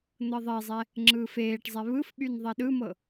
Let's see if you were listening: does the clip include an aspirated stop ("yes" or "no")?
no